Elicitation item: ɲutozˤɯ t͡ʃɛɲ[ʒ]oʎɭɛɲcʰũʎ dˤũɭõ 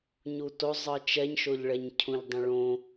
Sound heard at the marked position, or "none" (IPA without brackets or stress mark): ʃ